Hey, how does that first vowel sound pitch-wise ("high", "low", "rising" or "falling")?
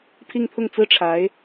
falling